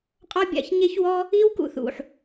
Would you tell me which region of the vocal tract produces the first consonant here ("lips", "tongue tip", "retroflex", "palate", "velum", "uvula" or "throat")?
uvula